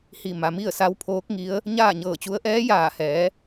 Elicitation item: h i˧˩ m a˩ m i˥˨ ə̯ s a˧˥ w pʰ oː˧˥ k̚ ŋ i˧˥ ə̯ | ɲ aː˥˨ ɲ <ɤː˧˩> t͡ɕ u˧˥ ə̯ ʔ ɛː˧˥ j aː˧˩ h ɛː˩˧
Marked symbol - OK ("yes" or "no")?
yes